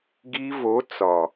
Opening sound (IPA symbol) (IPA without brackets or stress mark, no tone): ɡ